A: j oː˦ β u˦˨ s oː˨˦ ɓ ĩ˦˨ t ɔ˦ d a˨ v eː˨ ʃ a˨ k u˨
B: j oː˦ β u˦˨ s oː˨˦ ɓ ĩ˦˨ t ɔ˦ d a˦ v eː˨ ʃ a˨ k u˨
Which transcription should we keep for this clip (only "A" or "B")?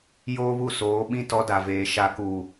A